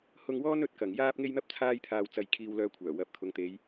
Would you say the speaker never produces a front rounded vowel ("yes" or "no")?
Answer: no